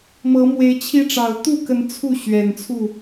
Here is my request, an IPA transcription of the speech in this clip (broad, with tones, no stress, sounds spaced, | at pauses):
m ɤ˨˦ m w e˨˦ ɪ̯ t͡ɕʰ i˦ ʈ͡ʂ ɑ˨˩ ʊ̯ t̪ u˥˨ k ə˨˦ n t͡sʰ u˥˨ ɕ ɥ ɛ˨˩ n t͡sʰ u˥˨